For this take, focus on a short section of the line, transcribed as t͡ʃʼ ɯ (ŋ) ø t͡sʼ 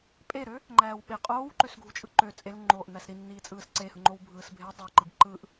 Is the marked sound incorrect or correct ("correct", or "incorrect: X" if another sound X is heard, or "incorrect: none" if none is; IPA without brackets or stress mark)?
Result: incorrect: ǃ